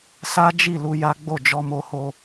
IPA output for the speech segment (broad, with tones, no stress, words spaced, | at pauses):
sa˦d͡ʒi˦˨ lu˧ ja˦ ɡ͡bo˦˨d͡ʒɔ˧ mo˧ ho˧